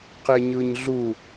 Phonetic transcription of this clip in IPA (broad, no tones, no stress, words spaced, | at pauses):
qeɲɯɲɮu